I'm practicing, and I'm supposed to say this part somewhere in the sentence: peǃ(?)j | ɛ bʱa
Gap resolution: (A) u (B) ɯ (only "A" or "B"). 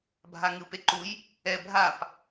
A